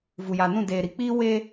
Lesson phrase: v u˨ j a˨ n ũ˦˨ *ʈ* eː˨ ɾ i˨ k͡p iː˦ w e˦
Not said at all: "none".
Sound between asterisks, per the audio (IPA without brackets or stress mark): d